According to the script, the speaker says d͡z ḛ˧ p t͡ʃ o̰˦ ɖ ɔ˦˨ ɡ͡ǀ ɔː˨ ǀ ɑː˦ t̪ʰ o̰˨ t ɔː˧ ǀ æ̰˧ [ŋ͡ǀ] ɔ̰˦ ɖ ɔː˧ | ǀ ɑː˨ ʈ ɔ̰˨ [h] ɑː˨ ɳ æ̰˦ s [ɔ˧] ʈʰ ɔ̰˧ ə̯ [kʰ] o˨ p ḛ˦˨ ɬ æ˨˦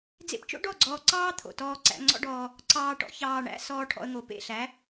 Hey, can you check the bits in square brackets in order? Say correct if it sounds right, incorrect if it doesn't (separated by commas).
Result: correct, incorrect, incorrect, incorrect